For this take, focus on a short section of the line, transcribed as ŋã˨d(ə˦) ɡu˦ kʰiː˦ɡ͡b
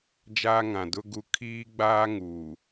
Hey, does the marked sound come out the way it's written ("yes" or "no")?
no